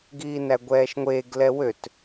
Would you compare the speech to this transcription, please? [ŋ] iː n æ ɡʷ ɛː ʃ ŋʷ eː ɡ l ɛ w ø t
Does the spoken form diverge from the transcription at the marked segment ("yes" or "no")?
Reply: yes